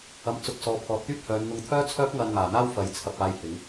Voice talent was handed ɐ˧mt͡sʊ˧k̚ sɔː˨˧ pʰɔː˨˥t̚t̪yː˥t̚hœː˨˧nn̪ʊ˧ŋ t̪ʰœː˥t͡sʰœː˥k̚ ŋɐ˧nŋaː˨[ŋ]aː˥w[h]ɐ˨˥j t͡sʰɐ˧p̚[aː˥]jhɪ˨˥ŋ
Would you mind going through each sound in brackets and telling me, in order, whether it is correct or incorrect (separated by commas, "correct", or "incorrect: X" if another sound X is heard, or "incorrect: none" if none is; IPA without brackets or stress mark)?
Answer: incorrect: n̪, incorrect: f, incorrect: aː˧